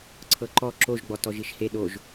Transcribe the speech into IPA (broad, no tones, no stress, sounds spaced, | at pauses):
ǀʰ ɤ ǃ ɔ ǁ o ʒ ɡ͡b ɔ t ɔ ʒ i ʃ h e ɗ o ʒ